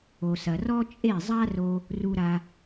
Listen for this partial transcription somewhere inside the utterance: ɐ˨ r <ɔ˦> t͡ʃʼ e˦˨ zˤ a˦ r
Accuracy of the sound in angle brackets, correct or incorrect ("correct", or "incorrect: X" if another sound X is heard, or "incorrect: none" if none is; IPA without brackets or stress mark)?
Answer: correct